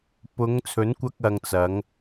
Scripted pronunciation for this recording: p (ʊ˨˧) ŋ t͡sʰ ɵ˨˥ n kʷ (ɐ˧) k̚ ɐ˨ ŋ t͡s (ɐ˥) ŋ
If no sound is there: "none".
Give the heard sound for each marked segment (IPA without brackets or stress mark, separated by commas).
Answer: ʊ˨˧, ɐ˧, ɐ˨˥